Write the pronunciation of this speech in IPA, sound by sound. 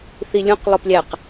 θ i lʲ ũ q lˠ o p lʲ æ q

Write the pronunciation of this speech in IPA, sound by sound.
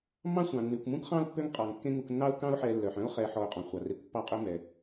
mː ɑ̃˦ sʷ ɑ̃˩ nː ʉ˩ kʷ m ũ˥ k χ ɑ̃˥ ʊ̯ pː ø˦ ŋ qʼ ɑ˩ ŋ kː ẽ˦ ŋ u˨ k nː ɑ˥ ʊ̯ k ɑ̃˦ ʊ̯ ħ ɛ˨ lː œ˩ ħ œ̃˥ ʊ̯ χ ɛ˨ ħ ɔ˨ ʊ̯ qʼ ɔ̃˩ χʷ ɑ˩ r e˨ kʷ pː ɑ˦ qʼ ø˦ m ɛ˩

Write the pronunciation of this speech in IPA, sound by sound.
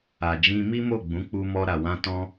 a˨ d͡ʒ ĩ˧ m i˦ m o˦˨ ɡ͡b ũ˨˦ k͡p u˧ m ɔ˧ ɾ a˨ w ã˧ t ɔ̃˧

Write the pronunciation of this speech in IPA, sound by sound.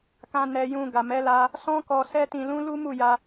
k ã˧ n ɛ˧ j ũ˧ ɡ a˨ m ɛ˨˦ l a˧ | s ɔ̃˦ k ɔ˧ s ɛ˦ t ĩ˧ l ũ˦ l u˦ m u˦˨ j a˧

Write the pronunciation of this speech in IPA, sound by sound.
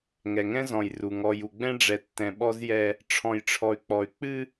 ŋ ɛ˨ ŋ ɛ̃˦ z ɔ̃˨ j r u˨ ŋ ɔ˨ j u˨ ɡ͡b ɛ̃˦ ɖ͡ʐ ɛ˨ tː ɛ̃˨ ɓ ɔ˦ z j ɛ˦ | ʈ͡ʂʰ ɔ̃˨ j ʈ͡ʂʰ ɔ˨ y̯ k͡p ɔ˨ y̯ k͡p ɨ˦

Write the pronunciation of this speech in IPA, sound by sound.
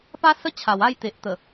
p a˦ s ə˦ t͡ɕʰ a˨˩ w a˥˧ j t̪ e˨ ʔ t̪ ə˨˩

